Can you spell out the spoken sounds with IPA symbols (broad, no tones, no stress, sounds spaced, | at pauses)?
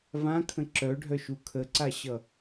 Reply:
v ã kʰ ə̃ ǁ œ ɖʱ œ ʃ u kʰ ə ǀ a ɕ ʌ